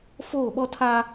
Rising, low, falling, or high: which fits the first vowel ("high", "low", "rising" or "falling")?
falling